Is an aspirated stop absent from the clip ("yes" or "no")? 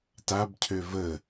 no